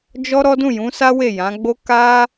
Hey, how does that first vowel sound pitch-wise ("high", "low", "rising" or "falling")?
high